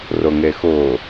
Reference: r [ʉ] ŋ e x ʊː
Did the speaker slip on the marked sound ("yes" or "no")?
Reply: yes